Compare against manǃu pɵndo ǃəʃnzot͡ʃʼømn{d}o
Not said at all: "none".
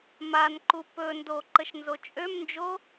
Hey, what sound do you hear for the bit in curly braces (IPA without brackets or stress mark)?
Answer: d͡ʒ